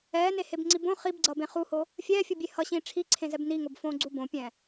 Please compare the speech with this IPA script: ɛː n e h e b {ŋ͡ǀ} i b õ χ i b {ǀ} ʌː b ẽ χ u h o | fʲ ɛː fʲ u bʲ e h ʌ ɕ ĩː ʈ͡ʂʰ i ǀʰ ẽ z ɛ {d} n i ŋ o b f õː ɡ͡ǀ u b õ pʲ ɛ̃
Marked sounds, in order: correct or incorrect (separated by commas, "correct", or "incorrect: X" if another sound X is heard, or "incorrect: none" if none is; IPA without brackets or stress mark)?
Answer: correct, incorrect: ɡ͡ǀ, incorrect: b